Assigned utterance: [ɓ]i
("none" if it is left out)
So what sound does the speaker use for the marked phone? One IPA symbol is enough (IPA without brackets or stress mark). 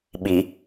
ɓ